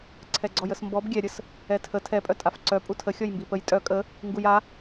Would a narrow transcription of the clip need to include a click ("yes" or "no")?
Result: yes